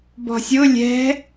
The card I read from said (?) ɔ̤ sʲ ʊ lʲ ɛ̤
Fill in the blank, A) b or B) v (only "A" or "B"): A